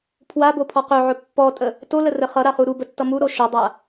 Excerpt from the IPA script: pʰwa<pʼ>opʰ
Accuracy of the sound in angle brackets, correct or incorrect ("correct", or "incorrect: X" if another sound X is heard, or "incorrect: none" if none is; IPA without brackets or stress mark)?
incorrect: b